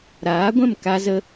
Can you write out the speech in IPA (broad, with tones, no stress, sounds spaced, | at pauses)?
ɾ aː˨˦ ɡʷ ɛ̃˦˨ m k a˧ z ə˧